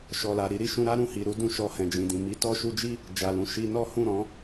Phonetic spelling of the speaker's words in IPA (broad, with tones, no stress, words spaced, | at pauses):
ʃɔ˨la˨ ɾi˧ɾi˨ʃũ˧ɾa˦ ɾũ˦˨hi˨ɾu˧ dũ˧ʃɔ˧ hɛ̃˨d͡ʒĩ˨dĩ˨ mi˨˦tɔ˧ʃu˧d͡ʒi˦ | d͡ʒa˨lũ˨ ʃi˧nɔ˦ hũ˦˨ɾɔ̃˨˦